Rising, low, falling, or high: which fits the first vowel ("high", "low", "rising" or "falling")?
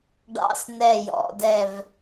falling